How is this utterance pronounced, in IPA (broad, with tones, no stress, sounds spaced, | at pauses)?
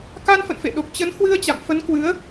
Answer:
k a˧ n f ə̰˧˨ n f ḛ˧˨ ɗ o˨˩ k̚ t͡ɕ ə˨˦ n h w ɨ˧ ə̯ t͡ɕ a̰˧˨ m f ə˨˦ n k w ɨ˨˦ ə̯